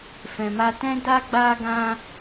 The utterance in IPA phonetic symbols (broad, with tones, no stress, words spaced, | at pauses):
fɛ̃˨ma˧tɛ̃˦da˦ ɡ͡ba˦ɡã˦